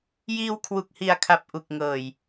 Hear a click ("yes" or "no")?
no